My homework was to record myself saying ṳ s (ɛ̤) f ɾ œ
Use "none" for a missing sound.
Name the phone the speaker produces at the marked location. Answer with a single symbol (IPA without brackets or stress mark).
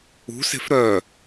e̤